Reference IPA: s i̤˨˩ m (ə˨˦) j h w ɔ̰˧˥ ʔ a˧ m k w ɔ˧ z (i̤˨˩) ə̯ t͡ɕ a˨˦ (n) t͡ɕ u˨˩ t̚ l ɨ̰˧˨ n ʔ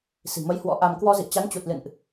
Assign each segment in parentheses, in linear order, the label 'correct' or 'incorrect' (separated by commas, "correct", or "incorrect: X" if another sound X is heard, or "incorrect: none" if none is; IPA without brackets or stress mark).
correct, incorrect: ḭ˧˨, correct